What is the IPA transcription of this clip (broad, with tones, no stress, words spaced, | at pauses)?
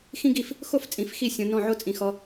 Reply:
xĩ˥ɡi˥˩f | xo˥˩ft͡sʼĩ˨˩˦f xi˥˩sʲõ˨˦ nɔ̃˥˩ʕo˥t͡sʼĩ˨˩˦xɔ˨˦